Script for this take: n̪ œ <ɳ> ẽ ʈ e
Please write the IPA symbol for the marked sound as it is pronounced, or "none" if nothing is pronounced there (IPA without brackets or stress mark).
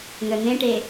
n̪